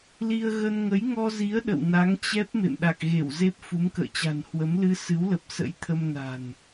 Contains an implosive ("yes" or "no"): yes